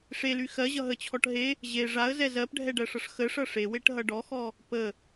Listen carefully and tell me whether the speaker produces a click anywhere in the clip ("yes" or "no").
no